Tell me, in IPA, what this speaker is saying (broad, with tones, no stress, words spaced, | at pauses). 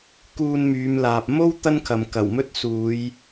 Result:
kuː˧nmyː˨˧mlaː˨p̚ mo˥w t̪ɐ˥nkʰɐ˨mkɐ˨˩wmɵ˥t̚ suː˨˧j